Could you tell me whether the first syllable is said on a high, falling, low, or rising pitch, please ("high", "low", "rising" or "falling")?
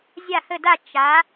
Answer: falling